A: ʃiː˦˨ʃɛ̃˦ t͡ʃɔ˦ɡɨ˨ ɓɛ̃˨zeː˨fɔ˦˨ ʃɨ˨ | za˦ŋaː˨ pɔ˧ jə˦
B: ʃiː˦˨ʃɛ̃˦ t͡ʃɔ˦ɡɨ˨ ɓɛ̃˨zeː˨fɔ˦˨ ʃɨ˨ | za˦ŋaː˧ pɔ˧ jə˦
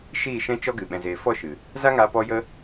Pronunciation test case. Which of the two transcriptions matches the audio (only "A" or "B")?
B